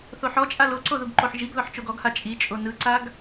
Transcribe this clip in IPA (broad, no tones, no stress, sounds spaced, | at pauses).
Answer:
θ o ħ ɔ t͡ʃʼ a l o ǀ o ð u ɡ ǃ o ħ ʒ i ɡ ð ɔ ħ t͡ʃ o ɡ ɔ ɡ h a t͡ʃʼ i t͡ʃʼ o n ɯ ǀ a ɡ